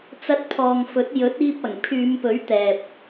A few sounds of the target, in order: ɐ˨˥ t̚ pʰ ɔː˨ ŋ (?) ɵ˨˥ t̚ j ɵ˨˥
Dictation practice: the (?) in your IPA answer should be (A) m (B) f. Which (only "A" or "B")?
B